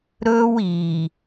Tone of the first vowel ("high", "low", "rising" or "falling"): high